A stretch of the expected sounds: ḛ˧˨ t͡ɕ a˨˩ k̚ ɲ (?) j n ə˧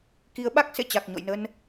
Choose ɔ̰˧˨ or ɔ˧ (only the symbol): ɔ̰˧˨